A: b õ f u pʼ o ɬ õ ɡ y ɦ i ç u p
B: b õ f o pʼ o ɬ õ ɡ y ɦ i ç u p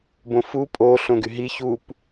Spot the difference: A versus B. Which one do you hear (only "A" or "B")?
A